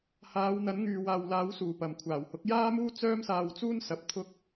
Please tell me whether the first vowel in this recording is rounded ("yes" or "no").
no